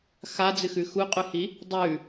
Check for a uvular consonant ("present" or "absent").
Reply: present